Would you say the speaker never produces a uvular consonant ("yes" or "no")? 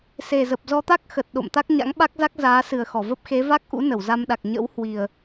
yes